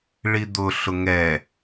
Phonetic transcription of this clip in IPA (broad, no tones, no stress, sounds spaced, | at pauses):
ɭ i d̪ ʊ ɬ ʊ ŋ ɛ